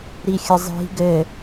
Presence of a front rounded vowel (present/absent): absent